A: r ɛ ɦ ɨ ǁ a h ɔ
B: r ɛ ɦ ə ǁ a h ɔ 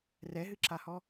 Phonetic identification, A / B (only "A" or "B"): A